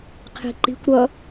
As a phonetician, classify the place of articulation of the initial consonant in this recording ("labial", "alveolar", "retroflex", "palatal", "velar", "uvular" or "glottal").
uvular